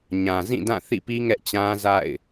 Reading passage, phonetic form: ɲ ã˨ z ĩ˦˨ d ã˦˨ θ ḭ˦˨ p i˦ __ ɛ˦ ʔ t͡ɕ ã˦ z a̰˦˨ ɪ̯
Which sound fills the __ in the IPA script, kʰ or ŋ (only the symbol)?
ŋ